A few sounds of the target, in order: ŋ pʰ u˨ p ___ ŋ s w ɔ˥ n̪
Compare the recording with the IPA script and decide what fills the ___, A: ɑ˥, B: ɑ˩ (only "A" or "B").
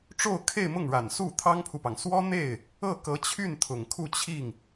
B